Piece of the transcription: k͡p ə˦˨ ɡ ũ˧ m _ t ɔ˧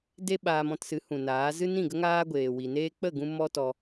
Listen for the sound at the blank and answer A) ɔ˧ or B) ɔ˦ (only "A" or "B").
B